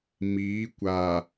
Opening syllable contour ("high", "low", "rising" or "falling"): rising